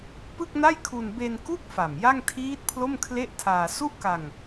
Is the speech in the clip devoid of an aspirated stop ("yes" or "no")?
no